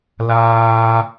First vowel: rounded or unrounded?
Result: unrounded